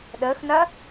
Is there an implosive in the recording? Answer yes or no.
yes